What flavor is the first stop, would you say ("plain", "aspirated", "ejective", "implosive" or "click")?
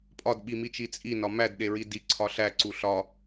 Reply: ejective